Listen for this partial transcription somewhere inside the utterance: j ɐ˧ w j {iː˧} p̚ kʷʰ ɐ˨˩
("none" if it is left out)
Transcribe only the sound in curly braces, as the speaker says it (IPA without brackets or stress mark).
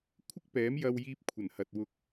iː˧